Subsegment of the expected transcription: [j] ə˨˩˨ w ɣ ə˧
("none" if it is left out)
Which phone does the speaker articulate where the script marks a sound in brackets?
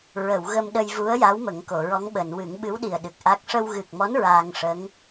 ɹ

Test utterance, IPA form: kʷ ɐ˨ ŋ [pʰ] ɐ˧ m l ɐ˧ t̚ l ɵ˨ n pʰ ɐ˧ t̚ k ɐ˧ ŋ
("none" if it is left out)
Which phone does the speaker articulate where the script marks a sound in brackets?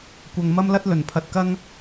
m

